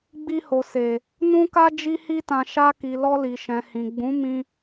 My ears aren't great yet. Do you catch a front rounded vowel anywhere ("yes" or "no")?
no